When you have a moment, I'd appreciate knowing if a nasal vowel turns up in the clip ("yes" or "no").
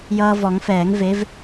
no